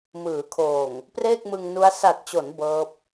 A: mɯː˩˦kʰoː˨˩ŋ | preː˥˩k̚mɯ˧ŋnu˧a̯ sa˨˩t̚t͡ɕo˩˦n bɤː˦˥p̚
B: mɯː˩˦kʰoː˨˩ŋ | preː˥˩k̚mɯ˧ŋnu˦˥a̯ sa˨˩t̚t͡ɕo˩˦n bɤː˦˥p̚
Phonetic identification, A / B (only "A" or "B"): B